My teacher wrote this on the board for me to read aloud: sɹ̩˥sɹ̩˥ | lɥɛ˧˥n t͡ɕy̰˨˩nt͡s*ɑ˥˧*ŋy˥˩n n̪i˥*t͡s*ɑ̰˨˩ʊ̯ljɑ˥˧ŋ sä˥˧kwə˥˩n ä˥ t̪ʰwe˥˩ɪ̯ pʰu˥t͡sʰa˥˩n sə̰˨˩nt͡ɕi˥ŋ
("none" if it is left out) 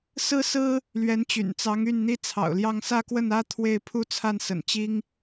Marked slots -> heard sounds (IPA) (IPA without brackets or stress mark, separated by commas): ɑ˧˥, t͡sʰ